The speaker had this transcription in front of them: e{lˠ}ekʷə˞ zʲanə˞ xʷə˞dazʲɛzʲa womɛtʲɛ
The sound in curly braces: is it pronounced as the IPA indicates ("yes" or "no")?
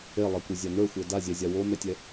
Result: yes